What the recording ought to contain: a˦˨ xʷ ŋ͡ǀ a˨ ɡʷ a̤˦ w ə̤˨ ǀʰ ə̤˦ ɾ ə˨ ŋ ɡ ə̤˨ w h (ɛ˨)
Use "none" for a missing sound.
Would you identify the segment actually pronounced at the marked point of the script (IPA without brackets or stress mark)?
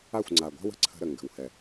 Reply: ɛ˨